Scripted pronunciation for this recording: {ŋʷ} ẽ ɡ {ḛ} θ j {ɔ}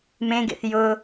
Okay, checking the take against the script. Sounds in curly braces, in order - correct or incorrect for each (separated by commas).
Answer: incorrect, correct, incorrect